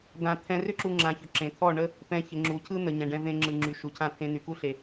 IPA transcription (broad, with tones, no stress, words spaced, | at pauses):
d̪ã˧ t̪ʰɛ̃˧rʏ˦ǁu˧ ŋ͡ǁã˧çʏ˧ǁẽ˨ t̪ʰɔ˦˨ɳə˦ | pɛ̃˧çɪ˨ŋ͡ǁu˨ cʰɯ˦n̪ə˨ɲɛ̃˨ɖɛ̃˧ vẽ˧ŋ͡ǁɯ˨ ŋ͡ǁy˨ ʃu˨cʰã˦˨ t̪ʰẽ˧n̪y˨ku˦ɬe˨